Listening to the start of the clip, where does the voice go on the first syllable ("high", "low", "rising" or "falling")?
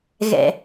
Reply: low